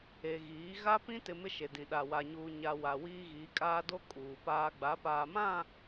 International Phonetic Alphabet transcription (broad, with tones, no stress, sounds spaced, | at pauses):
e˨ ɣ iː˨˦ ɣ a˦ p ĩ˦ t ɪ˨ m ɪ˦ ʃ e˨ d ĩ˨ ɗ a˨ w a˨ ɲ uː˨ ɲ a˨ w a˨ w iː˦ ɣ iː˨˦ kʼ aː˦ d o˦ kʼ uː˨ p aː˦ ɡ͡b a˨˦ p aː˨ m ã˦˨